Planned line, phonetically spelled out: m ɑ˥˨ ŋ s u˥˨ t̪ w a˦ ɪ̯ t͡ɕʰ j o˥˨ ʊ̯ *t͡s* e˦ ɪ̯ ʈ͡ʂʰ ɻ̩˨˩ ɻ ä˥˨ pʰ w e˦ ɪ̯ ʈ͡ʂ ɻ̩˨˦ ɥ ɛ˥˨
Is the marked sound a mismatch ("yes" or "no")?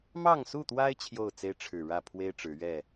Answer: no